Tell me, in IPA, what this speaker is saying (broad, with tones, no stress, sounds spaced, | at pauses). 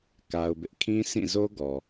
k a˦ ʊ̯ b ɪ˦ ʔ kʰ ĩ˦ s ĩ˦˨ z o˦ ɡ ɔ˨